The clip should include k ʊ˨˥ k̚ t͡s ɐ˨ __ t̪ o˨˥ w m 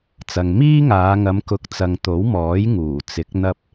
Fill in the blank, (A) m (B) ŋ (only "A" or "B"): B